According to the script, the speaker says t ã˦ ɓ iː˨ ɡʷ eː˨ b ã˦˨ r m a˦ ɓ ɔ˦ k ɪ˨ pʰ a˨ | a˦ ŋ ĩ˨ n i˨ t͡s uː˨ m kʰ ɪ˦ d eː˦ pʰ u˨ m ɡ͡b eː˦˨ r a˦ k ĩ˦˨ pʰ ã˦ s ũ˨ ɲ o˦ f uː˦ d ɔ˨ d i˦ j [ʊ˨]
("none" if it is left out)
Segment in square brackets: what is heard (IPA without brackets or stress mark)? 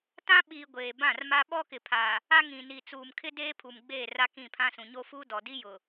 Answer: ʊ˨